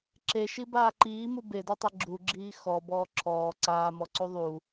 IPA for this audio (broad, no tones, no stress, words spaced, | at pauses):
ǁeʃibaː ǃiːmu bedatˤe ɡ͡ǁuɡ͡ǁiː xɔbɔː ǁʰɔː ǀaːmɔǀu ðˤu